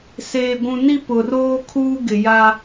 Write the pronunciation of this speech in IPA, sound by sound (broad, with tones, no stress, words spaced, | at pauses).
seː˨ɡʷũ˨ ni˦pʊ˨roː˦kʰuː˦ ɡɪ˨ ja˦